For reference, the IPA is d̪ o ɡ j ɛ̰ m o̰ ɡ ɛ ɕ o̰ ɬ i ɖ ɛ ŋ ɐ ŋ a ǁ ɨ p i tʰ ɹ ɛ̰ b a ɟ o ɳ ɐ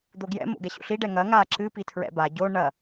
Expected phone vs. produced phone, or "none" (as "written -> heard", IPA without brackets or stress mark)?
none